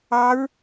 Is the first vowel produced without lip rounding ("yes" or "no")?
yes